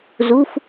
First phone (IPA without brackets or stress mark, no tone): z